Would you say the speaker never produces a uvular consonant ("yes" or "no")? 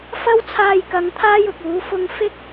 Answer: yes